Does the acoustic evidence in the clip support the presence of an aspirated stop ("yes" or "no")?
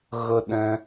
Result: no